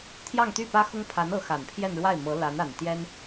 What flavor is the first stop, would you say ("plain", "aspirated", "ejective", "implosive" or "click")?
aspirated